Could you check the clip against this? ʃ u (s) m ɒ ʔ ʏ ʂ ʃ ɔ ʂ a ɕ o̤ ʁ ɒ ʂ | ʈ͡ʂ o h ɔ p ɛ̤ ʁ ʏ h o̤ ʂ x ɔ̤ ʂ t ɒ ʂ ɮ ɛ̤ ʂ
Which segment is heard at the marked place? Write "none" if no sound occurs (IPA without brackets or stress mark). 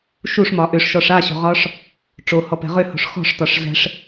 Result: ʂ